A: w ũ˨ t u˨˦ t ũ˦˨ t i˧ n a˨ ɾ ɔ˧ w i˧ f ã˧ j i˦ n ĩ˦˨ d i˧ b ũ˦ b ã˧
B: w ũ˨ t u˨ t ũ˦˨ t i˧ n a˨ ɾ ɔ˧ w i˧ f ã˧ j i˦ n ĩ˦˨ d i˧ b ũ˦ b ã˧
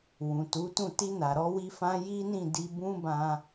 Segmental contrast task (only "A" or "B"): A